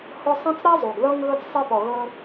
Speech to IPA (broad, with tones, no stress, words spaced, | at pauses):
hʊ˦ sˤĩ˦t͡sɾa˥ zˤu˩ɡðɤ˦ŋ ɣɤ˦t͡ssˤe˦pɔ˨ɣɤ˦